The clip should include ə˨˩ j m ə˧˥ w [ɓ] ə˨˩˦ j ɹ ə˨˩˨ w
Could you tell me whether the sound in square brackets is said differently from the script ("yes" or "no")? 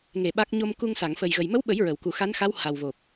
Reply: no